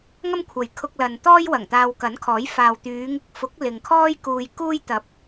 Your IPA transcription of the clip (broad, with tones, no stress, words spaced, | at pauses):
ŋɐ˥mkʷʰɐ˨jkʰʊ˧k̚lɐ˨n t̪ɔː˥jwɐ˨˩ŋ t̪aː˧wkɐ˨˥nkʰɔː˨˥j faː˨wt̪yː˨˧ŋɪ˧k̚fʊ˨˥k̚ lɪ˨ŋkʰɔː˥j kuː˧jkuː˥j t̪ɐ˨˥p̚